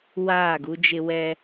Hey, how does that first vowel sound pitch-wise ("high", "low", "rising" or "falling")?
falling